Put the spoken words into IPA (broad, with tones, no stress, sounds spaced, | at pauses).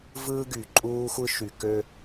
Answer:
v ɯː˦ ɡ y˨ ǃʼ uː˦ xʷ ɯ˦ ʃ y˨ k ø˦